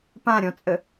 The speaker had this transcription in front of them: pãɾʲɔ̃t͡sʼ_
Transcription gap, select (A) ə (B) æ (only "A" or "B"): A